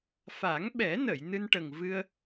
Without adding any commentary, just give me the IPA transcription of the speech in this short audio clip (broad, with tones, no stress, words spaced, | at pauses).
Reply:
fa˨˩˦ŋɓɛ˨˩˦nə˨˩˨j nɨ˧nʈə˨˩ŋ vɨ˧ə̯